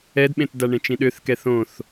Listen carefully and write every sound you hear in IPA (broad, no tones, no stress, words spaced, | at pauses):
ɛdɓẽtda ɳẽt͡ʃĩɗøθ kɛθõθ